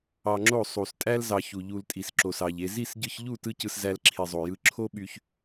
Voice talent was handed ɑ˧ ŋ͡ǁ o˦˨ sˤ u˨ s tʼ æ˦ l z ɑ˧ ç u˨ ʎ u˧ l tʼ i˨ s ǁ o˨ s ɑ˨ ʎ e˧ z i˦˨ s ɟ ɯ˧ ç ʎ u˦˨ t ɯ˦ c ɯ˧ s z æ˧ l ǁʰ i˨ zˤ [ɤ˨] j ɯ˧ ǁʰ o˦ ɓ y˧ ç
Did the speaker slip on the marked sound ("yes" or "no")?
yes